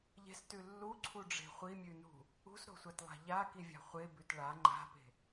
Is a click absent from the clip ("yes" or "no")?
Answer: no